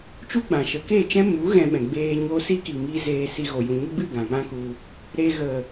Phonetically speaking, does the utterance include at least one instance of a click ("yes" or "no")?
no